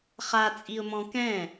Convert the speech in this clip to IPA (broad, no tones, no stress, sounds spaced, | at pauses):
χ a t͡sʼ i ʊ̯ m ɔ̃ k ɛ̃